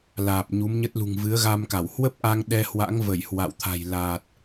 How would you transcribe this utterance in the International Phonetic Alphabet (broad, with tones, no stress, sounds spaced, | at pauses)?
l aː˨˩ p̚ ɲ u˨˦ m ɲ ə˦˥ t̚ l ṳ˨˩ ŋ v ɨ˨˦ ə̯ ɣ a˧ m k a˧˩ w h w ə˦˥ p̚ ʔ a˧ ŋ ɗ ɛ˧ h w a̰˧˥ ŋ v ə˧˩ j h w a̰˧˨ w t̪ʰ a̤˨˩ j l aː˨˩ t̚